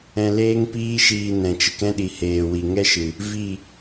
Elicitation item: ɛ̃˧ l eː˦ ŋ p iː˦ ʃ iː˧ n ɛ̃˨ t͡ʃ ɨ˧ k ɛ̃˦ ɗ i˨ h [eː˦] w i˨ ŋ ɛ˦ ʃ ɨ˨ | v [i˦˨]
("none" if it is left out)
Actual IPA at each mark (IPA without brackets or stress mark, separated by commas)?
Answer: eː˨, i˦˨